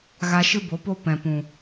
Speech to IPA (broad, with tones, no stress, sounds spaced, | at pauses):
ɣ a˧ ʃ ɨ˦ b o˨˦ p o˦ p ɛ̃˨ p ũ˨